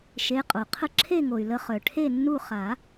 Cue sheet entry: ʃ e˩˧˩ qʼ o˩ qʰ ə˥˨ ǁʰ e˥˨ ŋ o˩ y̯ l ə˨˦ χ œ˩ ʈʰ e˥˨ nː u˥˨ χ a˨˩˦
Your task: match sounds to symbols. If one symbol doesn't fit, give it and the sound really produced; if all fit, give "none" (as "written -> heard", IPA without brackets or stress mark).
none